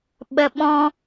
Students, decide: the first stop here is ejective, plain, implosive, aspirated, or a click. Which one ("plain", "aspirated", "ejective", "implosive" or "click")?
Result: implosive